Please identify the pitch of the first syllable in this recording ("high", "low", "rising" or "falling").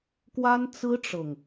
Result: high